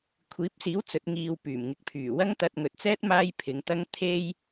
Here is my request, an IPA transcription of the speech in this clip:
kʷʰ iː˨˥ p̚ s iː˨˥ w t͡s ɵ˨˥ t̚ ŋ iː˨ w p yː˨˩ m ŋ ɪ˨ k̚ pʰ yː˨˩ w ɐ˥ ŋ t̪ ɐ˧ t̚ ŋ ɵ˨ t̚ t͡s ɛː˥ t̚ m aː˥ j pʰ ɪ˨˧ ŋ t̪ ɐ˥ ŋ t̪ʰ e˥ j

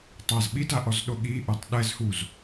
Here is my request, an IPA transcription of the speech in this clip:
tˤ a z ɓ i d a ʔ ɔ z ɗ o ɠ i ʔ o tˤ ɗ ɛ z h u z

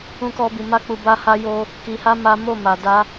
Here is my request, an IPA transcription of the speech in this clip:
ũ˦ k ɔ˦ b i˧ m a˦ k͡p u˧ b a˦ h a˦ j o˦ | k i˧ h a˦ m a˦ m o˦˨ m a˨ d a˧

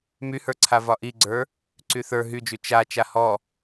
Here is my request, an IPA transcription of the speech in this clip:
m y h ə˞ ǀʰ a v ɒ ʔ i ɡ͡ǀ ə˞ | ǀ y θ ə˞ ɦ y d͡ʒ y t͡ʃ a t͡ʃ a h ɔ

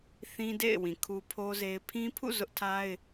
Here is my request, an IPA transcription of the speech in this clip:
θ ĩ˦ d ḛ˦˨ ɪ̯ w ĩ˨ kʰ u˦ pʰ o˦ z e˦ ɪ̯ pʰ ĩ˦ pʰ ṵ˦˨ z ʊ˦ ʔ tʰ a˦ ɪ̯

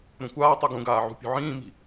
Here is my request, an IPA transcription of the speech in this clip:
ɾ ũ kʷ aː tˤ ɨ ɡ ũ ɡ aː ʕ ṳ pʲ ṳ ʕ ĩː m i̤

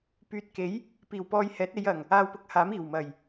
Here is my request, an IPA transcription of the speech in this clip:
p yː˨ t̚ k e˨˥ j | p iː˨˩ w p ɔː˧ j h ɛː˨˥ t̚ e˨˧ j ɐ˨˩ ŋ | aː˧ w p ʊ˨˥ k̚ h aː˨˥ m iː˨˩ w m ɐ˨˩ j

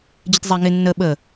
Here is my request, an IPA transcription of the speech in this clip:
d͡ʑ ɪ t zˤ a ŋ ɪ nː ə ɓ ə

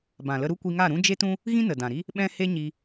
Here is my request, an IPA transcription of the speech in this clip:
b ã˨ l ə˧ ɾ u˦ kʷ i˧ ŋ a˦˨ ɾ ũ˦ d͡ʒ e˦ t ũ˦ | ɣ ĩ˦ n ə˨ d ã˨ ɾ i˦ | ɓ ɛ̃˦ h e˦ ɲ i˧

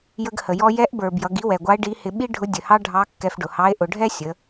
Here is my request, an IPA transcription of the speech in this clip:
j ə˧ ɡ h ə˩ j ɔ˧ j ɛ˧˥ ʔ b ə˞˩ b j ʌ˩˧ ɡ i˧˥ w ɛ˩ ɡʷ ɑ˧˥ e̯ ɖ i˧˥ h ɪ˧ ɓ i˥ ɖʱ ʊ˧˥ dʲ ə˩ h ɑ˥ ɖʱ ɑ˧˥ kː ɛ˧ f ɖ ʊ˩ h ɑ˧˥ e̯ ʔ ʊ˩˧ ɖʱ ɛ˥ sʲ ə˩˧

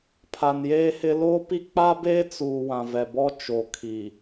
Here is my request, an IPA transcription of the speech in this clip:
pʰ a˨ n j eː˦ h ɪ˦ l oː˦ p i˦ k͡p a˦ b eː˦ t͡s u˨ w ã˨ v ɛ˨ b ɔ˦ t͡ʃ o˨ kʰ i˨

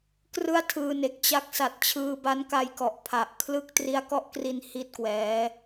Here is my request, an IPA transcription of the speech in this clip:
k r ɯ˥˩ a̯ tʰ ɯː˧ n e˨˩ k̚ t͡ɕ a˦˥ k̚ s a˨˩ t̚ t͡ɕʰ ɯː˧ b a˦˥ n k a˧ j k ɔ˨˩ ʔ pʰ a˨˩ ʔ kʰ l ɯ˥˩ k̚ t r i˦˥ a̯ k ɔ˦˥ ʔ k r i˧ n h i˥˩ t̚ k w ɛː˦˥

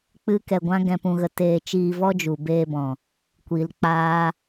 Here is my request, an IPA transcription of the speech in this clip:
k͡p ɨ˦ k ɛ˧ ɡʷ ã˦ ɡ ɛ̃˧ p ũ˧ ɣ ə˧ t eː˧ t͡ʃ iː˧ v ɔ˦ d͡ʒ u˨ b eː˧ b ɔ̃˨ | kʷ i˨ l k͡p aː˦

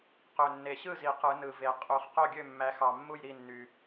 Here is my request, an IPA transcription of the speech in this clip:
q ø˨˩ nː e˨˩ ɕ ɯ˥˩ z i˨˩˦ q ɯ˨˩˦ n ɯ˨˩ v e˨˩˦ qʼ u˨˩˦ χ q o˥˩ ɡʲ ø˥˩ mː æ˨˦ x ɑ˨˩ mː u˥˩ j ɾ i˥˩ nː y˨˩

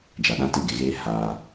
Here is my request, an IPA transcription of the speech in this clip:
d͡ʒ a˨ ɗ ã˦ t ɪ˦˨ ɡ e˨ ɣ eː˦ h a˦

